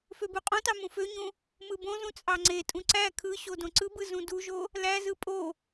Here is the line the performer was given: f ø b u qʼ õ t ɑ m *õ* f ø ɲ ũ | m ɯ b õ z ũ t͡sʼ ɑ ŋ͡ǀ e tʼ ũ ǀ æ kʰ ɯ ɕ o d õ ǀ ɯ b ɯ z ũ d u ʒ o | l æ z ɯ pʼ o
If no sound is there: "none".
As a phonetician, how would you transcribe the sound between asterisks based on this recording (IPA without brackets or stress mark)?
ũ